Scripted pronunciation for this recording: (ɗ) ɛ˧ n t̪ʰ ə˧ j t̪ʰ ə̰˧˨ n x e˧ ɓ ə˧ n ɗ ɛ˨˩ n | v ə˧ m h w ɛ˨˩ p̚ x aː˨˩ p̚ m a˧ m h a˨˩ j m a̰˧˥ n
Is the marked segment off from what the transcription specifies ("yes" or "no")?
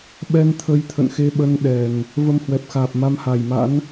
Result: yes